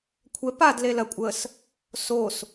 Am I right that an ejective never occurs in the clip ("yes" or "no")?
no